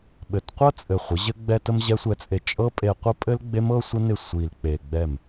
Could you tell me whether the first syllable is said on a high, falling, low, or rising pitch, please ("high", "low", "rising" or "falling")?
low